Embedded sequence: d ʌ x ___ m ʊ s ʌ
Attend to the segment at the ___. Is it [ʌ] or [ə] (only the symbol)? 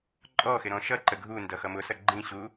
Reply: ʌ